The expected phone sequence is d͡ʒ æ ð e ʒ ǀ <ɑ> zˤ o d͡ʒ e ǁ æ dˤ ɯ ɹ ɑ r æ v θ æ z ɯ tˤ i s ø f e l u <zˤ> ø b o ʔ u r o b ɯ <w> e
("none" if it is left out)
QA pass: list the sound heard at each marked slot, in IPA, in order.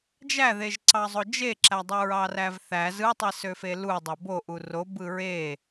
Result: ɑ, dˤ, ɹ

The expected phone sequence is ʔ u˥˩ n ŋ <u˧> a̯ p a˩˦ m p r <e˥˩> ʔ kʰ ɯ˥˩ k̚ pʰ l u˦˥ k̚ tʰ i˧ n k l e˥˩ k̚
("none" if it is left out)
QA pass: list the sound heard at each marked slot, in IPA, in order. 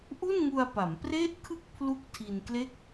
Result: u˧, e˥˩

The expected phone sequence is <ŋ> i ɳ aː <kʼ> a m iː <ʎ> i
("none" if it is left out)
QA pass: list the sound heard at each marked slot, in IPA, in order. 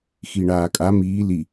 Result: x, kʼ, l

